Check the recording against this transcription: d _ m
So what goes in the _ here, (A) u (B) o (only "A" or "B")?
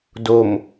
B